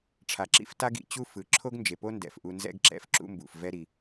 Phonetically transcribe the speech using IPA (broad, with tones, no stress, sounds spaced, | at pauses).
ʈ͡ʂʰ a˩ ǁ ḭ˥ f t a˥ ɡ ḭ˧ t͡ɕ u˥ f ɯ˩ ǁʰ o˥ ɡ n d͡ʒ e˩ p o˥ n d ɛ̰˩ f ʔ u˧ n z ɛ̰˥ ɡ ǁ ɛ̰˧ f ǁ ṵ˥ m b ṵ˩ f v ɛ˥ ɾ i˩